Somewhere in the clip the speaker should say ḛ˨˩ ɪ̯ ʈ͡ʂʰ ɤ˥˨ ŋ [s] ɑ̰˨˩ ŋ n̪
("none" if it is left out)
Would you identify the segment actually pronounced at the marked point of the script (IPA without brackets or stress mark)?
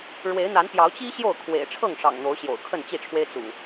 ʂ